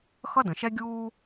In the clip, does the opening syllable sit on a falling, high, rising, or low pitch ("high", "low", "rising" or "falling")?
high